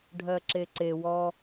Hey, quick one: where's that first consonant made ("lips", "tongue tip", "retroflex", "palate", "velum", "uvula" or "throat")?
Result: retroflex